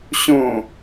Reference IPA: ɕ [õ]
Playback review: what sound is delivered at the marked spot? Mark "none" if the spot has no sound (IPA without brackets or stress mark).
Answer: õ